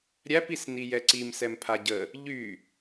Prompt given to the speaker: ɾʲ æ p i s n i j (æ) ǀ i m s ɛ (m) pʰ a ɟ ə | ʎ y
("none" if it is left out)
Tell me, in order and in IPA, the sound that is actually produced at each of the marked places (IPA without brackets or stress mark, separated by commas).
ɛ, m